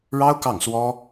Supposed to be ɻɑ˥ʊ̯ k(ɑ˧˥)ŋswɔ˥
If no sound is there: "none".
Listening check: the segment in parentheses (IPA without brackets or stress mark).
ɑ˥˩